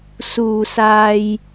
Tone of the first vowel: low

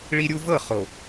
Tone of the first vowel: high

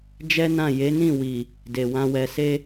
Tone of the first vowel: high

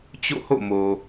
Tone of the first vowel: falling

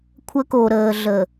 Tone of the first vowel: high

